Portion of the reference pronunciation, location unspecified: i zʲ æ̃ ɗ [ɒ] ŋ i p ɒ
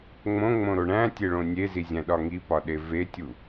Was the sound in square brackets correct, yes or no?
yes